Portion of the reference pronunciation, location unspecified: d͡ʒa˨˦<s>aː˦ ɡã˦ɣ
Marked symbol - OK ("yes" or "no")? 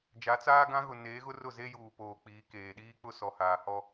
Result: no